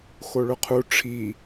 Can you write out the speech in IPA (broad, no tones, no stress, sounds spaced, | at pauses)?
x o ɭ ɵ qʰ u ʈ͡ʂʰ i